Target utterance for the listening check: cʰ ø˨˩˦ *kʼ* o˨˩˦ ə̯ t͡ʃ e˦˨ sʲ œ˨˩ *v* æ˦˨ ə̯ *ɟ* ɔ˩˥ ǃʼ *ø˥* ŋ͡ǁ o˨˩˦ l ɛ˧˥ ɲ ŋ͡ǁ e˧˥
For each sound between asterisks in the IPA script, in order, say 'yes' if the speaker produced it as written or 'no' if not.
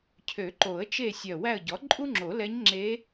no, no, yes, no

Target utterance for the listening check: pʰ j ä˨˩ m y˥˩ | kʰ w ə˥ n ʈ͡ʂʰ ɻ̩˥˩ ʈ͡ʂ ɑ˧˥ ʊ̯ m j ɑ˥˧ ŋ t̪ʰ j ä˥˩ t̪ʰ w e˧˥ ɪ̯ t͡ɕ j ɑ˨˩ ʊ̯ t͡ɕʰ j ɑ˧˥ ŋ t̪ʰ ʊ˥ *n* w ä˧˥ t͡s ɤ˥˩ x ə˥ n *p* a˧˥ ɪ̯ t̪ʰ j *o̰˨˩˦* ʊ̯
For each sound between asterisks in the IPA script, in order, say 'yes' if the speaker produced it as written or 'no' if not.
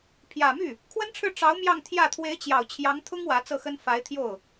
no, no, no

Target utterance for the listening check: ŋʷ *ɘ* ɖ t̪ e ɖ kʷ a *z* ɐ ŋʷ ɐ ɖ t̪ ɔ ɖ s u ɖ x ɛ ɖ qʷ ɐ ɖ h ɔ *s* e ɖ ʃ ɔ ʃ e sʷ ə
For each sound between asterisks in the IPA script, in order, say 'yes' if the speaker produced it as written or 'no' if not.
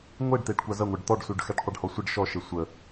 no, yes, no

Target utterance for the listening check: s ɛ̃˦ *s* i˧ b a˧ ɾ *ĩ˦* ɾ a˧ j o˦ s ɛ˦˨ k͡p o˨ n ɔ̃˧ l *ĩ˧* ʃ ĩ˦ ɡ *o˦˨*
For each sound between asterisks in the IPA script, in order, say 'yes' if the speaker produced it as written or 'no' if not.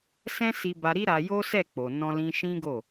yes, no, yes, yes

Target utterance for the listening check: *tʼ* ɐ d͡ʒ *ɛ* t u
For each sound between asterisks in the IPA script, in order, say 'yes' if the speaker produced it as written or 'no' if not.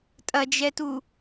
yes, yes

